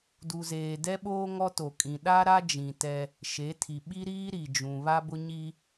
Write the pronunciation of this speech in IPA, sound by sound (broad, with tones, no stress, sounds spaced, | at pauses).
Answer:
d u˨ z eː˨ d ɛ˦ ɓ oː˦ ŋ ɔ˦ t o˨ kʼ ĩ˨ ɗ a˦ ɾ a˦ d͡ʒ ĩ˨ t ɛ˦ | ʃ e˨˦ tʰ i˨ ɓ i˦ ɾ iː˦ ɾ i˨ d͡ʒ ũ˨ β a˦ b ʊ˦ ɲ i˦